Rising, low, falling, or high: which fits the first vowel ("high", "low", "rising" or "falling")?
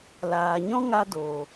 low